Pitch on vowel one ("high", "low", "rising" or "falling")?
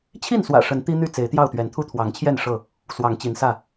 falling